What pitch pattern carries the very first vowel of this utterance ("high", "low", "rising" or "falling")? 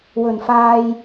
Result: low